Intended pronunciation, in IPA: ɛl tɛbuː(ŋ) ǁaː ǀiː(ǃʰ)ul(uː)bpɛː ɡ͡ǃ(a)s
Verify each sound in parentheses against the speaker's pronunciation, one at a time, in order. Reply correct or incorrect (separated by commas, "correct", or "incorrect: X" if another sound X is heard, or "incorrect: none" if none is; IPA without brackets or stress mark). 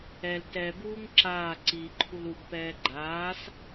correct, correct, incorrect: u, incorrect: aː